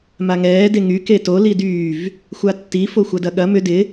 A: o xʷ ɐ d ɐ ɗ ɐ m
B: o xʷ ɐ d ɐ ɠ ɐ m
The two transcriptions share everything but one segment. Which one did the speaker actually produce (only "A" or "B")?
B